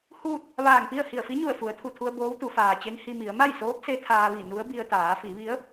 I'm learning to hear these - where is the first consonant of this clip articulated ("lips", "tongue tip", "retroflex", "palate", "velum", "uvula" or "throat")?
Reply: throat